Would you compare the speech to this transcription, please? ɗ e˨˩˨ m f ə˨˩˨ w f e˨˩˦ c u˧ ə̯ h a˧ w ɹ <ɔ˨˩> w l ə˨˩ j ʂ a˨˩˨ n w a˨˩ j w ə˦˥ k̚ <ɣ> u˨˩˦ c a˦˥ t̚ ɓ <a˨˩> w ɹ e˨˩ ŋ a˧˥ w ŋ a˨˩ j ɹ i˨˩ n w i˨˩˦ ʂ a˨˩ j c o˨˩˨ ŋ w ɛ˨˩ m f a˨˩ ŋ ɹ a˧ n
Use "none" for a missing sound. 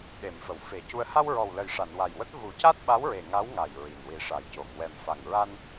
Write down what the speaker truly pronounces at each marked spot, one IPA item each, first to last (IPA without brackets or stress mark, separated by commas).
ɔ˨˩, ɣ, a˧˥